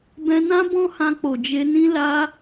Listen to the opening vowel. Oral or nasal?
nasal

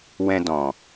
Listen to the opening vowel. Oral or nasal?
nasal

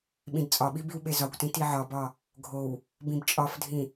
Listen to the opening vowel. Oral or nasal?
nasal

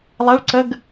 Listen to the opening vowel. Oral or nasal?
oral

